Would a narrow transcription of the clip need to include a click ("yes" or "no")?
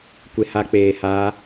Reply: no